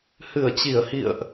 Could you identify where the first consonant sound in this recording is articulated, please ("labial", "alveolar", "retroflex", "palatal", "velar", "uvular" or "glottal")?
glottal